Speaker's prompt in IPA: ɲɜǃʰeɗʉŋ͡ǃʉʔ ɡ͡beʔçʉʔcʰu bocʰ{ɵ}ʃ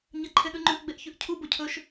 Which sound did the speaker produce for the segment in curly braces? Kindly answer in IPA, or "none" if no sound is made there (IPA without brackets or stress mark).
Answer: ɵ